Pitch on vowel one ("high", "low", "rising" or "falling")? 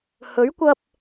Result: rising